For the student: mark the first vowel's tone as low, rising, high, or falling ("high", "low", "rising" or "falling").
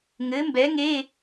rising